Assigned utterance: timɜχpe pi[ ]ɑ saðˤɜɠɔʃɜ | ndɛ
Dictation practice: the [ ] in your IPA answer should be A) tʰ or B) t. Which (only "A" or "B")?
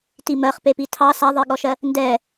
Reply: A